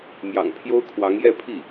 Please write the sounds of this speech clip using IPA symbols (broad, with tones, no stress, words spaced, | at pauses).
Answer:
mjɑ̰˨˩ŋpʰjo˥ʊ̯kʰwɑ˧˥ŋ jɛ˥˧pʰi˥˩